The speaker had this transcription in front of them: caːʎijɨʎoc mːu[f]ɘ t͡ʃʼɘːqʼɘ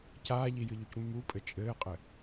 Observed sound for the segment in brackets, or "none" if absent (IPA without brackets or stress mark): pʼ